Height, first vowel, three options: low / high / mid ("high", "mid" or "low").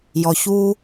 mid